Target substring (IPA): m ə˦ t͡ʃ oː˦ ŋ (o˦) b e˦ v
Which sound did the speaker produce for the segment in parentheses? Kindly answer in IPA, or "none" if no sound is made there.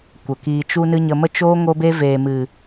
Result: o˦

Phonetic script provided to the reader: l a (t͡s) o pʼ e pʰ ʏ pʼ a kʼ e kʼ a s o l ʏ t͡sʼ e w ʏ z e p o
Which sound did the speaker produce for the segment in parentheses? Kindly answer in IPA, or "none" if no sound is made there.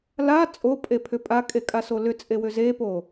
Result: t͡sʼ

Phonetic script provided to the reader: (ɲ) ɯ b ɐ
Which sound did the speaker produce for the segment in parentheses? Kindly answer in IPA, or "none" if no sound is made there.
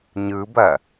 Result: ɲ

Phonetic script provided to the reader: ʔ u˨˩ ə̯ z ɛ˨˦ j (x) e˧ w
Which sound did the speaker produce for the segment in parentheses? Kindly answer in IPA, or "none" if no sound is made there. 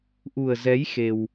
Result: x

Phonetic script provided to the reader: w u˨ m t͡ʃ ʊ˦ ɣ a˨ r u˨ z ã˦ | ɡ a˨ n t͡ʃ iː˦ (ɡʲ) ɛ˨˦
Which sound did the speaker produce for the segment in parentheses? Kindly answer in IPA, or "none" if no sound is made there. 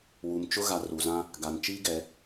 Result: ɡ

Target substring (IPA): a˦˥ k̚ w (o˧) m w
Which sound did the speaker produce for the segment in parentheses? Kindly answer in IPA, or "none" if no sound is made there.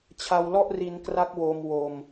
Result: o˧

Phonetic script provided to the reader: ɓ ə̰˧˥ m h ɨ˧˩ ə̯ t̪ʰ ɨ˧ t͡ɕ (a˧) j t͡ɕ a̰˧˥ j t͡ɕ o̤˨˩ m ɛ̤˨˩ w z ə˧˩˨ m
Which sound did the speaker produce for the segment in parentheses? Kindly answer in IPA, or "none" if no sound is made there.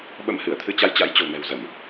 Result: a˧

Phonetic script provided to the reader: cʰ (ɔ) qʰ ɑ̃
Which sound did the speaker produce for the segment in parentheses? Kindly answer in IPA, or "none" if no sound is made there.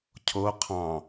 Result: o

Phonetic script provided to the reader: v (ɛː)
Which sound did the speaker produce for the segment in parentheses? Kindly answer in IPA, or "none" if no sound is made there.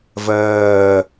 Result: ɜː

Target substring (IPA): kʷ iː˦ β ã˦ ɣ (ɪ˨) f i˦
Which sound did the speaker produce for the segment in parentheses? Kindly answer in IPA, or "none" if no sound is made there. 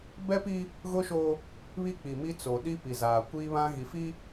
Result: i˨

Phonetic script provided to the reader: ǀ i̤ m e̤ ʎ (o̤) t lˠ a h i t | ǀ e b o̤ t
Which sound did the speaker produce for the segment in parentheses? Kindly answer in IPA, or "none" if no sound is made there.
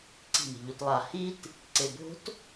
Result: o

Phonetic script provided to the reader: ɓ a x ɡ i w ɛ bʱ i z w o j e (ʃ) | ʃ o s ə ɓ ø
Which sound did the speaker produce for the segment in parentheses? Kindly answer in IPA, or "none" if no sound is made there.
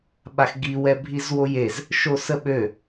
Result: z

